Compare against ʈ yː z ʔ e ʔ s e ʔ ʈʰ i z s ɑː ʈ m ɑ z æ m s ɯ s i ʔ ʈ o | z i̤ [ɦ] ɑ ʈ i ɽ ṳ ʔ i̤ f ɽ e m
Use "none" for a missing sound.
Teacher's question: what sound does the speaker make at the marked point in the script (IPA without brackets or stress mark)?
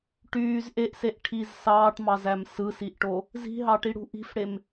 ɦ